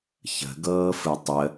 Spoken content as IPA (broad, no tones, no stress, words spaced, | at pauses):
çə̤ɡɤːfɯ tˤə